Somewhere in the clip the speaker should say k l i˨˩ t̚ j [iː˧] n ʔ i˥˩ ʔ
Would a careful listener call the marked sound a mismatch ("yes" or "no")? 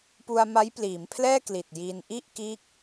no